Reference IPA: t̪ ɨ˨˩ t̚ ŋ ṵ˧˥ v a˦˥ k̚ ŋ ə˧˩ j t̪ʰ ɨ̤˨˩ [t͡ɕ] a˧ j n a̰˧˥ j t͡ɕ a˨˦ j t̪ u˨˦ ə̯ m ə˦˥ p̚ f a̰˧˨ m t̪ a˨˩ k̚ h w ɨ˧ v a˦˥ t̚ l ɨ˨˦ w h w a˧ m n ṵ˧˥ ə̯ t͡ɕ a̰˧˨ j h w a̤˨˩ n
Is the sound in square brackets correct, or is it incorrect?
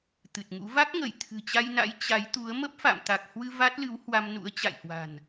correct